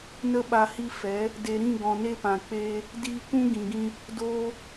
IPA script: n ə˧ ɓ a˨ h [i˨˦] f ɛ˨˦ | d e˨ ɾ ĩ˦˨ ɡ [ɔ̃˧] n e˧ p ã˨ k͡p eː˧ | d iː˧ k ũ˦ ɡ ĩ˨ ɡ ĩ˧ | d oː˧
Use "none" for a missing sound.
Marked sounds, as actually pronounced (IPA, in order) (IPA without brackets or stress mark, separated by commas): i˧, ɔ̃˨